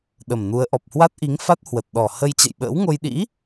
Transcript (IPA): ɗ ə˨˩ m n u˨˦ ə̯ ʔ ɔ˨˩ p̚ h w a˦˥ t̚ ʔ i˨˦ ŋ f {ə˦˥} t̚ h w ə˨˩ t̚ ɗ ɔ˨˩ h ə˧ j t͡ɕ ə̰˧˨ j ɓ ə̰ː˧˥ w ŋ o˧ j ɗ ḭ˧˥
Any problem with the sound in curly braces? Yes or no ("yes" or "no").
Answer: yes